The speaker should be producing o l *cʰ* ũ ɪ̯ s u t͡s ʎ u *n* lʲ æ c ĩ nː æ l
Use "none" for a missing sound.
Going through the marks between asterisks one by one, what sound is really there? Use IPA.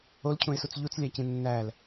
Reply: cʰ, t͡s

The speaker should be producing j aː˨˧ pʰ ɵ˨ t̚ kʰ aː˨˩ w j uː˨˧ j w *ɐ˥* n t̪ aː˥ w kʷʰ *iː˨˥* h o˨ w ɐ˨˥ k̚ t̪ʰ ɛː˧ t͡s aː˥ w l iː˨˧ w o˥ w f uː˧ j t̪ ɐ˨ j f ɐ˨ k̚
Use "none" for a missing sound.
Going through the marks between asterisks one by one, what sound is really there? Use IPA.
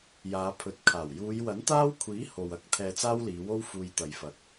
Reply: ɐ˨˥, iː˨˥

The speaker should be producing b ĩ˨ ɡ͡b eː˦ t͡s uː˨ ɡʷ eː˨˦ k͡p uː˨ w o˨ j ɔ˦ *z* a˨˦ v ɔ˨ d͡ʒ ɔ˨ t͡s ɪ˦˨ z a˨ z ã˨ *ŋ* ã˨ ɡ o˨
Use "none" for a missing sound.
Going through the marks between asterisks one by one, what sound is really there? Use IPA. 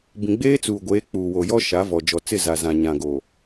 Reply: ʃ, ɲ

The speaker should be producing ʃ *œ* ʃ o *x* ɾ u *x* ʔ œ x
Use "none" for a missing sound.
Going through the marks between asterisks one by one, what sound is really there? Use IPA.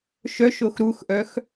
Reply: œ, x, x

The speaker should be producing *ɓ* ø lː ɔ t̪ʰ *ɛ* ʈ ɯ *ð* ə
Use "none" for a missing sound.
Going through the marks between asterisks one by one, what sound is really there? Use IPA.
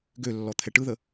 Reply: ɡ, ɛ, ð

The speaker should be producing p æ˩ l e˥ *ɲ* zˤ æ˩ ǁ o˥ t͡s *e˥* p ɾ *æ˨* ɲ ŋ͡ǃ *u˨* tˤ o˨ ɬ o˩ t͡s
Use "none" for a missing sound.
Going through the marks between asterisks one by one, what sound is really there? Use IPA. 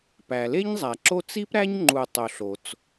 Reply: ɲ, i˥, æ˥, u˨

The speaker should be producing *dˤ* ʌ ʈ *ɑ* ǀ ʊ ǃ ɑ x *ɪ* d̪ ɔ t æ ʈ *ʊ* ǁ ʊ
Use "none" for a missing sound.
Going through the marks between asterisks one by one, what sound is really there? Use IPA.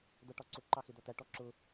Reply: d̪, ɒ, ɪ, ɔ

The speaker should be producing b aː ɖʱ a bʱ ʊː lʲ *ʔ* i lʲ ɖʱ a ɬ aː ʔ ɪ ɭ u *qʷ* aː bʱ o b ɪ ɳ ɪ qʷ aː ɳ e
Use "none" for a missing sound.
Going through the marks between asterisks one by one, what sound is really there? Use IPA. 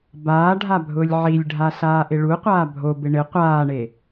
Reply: ʕ, qʷ

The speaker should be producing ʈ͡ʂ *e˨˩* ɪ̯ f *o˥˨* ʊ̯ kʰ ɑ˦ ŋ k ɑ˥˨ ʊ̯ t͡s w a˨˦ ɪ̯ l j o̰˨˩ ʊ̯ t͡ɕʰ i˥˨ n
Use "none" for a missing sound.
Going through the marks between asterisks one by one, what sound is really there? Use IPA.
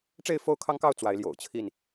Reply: e˥˨, o˥˨

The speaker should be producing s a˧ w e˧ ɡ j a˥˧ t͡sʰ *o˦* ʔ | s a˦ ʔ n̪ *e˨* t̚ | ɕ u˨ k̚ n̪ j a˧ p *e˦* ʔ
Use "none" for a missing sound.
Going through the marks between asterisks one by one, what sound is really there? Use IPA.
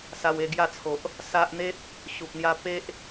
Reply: o˨, e˦, e˦

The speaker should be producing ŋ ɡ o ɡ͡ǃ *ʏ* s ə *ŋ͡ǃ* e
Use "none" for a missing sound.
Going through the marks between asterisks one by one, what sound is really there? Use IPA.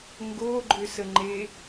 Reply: ʏ, ŋ͡ǃ

